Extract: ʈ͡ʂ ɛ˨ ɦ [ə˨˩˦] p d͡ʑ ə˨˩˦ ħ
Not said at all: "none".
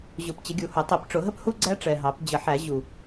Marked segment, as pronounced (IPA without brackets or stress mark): ɑ˨˩˦